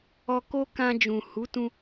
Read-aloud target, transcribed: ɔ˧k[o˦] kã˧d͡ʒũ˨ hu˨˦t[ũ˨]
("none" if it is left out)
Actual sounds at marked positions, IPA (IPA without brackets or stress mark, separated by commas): o˦, ũ˧